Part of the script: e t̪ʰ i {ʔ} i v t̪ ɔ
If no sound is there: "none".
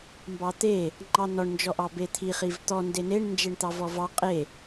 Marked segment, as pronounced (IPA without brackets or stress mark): χ